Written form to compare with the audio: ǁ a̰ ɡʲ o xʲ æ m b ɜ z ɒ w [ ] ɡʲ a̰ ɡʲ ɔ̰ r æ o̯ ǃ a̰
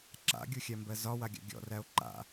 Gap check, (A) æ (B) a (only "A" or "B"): B